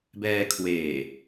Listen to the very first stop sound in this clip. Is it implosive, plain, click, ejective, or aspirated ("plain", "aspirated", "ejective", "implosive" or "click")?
plain